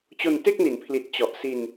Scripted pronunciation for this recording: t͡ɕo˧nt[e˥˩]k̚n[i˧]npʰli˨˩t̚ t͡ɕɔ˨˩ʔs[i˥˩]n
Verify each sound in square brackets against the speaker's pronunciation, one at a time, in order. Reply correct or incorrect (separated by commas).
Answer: correct, incorrect, incorrect